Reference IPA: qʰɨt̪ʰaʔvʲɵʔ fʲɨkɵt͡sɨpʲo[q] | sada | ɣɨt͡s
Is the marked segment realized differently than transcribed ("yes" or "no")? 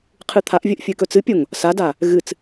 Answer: yes